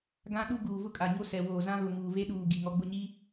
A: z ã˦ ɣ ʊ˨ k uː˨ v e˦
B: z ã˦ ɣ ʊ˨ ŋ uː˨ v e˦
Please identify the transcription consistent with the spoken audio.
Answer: B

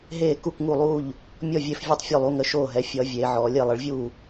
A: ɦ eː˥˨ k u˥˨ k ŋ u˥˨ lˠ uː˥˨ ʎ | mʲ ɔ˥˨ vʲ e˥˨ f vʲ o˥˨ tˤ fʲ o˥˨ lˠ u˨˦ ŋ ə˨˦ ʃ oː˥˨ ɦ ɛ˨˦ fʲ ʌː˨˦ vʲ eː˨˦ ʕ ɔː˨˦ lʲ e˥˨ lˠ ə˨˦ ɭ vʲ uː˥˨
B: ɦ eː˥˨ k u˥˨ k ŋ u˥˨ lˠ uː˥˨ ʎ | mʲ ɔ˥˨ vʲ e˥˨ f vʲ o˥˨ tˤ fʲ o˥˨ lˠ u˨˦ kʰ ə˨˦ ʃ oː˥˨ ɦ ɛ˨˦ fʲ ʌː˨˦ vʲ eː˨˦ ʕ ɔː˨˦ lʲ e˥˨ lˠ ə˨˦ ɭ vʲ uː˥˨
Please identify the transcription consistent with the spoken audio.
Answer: A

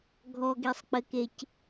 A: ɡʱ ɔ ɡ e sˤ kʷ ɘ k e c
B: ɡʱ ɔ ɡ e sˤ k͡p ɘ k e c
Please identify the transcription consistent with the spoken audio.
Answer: B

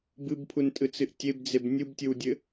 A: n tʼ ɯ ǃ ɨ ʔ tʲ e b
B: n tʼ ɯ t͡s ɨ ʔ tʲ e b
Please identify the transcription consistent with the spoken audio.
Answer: B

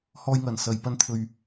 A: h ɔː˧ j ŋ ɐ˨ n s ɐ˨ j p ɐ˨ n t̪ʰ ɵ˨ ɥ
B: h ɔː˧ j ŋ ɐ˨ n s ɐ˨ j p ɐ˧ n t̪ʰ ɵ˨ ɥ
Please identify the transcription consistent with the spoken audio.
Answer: B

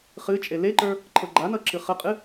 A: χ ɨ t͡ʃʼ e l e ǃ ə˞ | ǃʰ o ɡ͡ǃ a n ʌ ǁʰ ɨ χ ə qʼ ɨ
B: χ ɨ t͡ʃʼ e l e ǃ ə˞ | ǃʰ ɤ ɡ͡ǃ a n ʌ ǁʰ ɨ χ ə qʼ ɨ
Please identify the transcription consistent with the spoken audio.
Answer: B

